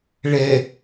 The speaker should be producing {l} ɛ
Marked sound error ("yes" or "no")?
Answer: yes